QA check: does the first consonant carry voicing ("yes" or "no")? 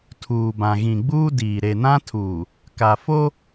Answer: no